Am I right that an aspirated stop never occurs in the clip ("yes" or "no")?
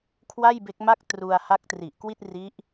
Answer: no